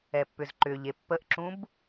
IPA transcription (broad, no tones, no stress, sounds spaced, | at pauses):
ɛ pː ʏ z ǃ ʏ ʎ e pː ə ʔ ǁ ũ b